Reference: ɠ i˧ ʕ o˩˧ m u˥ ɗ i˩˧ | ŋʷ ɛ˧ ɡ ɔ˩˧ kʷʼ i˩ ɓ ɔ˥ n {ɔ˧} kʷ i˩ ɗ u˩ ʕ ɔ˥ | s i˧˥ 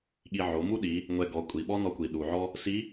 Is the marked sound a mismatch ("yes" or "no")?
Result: no